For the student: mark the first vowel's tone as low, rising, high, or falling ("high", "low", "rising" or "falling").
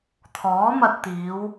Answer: rising